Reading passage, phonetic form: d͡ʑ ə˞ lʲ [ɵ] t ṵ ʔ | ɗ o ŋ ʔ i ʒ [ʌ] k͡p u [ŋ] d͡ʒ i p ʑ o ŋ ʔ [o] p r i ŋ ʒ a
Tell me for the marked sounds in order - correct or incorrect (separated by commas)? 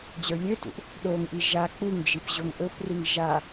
incorrect, incorrect, correct, incorrect